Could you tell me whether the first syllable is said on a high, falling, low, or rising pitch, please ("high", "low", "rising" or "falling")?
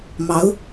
rising